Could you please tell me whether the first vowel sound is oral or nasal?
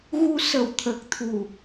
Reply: oral